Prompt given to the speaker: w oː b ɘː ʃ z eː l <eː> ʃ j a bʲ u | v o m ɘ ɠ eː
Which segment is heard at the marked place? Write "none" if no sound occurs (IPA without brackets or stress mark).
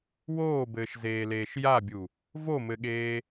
eː